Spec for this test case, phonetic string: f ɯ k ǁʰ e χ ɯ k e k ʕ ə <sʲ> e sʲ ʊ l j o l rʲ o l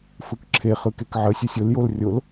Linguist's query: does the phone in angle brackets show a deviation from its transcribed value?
no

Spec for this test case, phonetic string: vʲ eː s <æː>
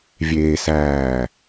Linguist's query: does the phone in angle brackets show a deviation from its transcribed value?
no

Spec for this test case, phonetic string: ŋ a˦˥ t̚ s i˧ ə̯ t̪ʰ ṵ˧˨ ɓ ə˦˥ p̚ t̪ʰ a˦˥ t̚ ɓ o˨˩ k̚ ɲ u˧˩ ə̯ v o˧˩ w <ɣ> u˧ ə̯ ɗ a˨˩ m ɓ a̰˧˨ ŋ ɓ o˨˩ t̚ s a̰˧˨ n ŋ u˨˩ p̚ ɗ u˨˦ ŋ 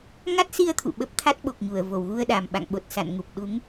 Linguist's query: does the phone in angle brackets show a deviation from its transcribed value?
no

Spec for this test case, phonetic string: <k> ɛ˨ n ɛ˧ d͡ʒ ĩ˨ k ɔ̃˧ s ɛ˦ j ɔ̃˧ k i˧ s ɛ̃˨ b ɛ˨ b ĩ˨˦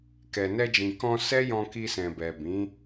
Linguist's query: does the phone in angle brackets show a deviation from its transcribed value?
no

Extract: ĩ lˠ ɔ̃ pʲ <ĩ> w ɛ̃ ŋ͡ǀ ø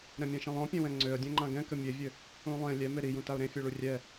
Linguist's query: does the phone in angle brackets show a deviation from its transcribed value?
yes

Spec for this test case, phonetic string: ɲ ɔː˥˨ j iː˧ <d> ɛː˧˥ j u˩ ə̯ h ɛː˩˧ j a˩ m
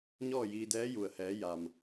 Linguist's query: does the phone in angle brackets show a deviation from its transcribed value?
no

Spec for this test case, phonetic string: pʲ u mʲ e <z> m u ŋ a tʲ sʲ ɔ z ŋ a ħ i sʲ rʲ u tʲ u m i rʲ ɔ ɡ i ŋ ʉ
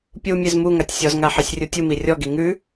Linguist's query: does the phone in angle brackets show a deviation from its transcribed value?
no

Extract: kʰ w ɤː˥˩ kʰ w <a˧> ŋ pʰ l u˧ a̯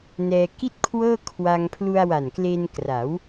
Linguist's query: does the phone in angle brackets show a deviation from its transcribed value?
no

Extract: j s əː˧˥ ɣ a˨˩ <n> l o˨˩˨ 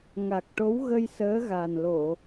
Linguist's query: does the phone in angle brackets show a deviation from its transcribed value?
no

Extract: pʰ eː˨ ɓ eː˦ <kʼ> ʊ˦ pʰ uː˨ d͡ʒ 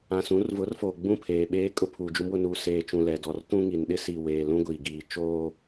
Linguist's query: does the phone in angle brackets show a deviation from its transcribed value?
no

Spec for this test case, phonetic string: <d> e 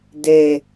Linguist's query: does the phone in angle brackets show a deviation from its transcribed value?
no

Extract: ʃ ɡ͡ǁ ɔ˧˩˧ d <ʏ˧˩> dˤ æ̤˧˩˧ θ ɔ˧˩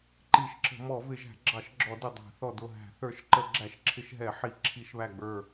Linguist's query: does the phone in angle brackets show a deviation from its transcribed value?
yes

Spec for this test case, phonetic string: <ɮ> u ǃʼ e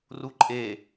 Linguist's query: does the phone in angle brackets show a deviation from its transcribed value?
yes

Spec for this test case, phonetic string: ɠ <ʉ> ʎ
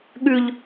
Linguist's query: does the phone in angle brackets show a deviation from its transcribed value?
no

